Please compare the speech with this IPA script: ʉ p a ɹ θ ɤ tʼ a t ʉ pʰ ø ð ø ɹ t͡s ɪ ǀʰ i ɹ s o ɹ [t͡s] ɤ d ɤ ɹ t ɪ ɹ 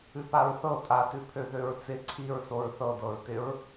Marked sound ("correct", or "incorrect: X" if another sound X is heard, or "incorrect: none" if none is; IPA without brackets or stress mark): incorrect: θ